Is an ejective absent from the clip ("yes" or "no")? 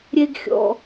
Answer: yes